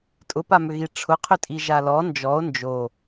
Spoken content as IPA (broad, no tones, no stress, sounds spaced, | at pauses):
tʼ ʊ p a m ʏ ɣ i ʈ͡ʂʰ ʊ qʰ ʏ tʼ i ʒ a l ɔ n d͡ʒ ɔ o̯ n d͡ʒ o